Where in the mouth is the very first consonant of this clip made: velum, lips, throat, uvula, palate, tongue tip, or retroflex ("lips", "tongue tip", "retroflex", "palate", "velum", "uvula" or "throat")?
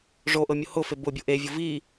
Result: retroflex